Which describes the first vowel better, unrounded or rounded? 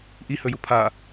unrounded